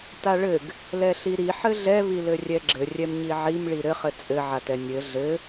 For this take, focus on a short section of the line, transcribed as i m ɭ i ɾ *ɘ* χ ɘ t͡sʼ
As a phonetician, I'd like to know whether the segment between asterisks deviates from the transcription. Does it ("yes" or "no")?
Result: no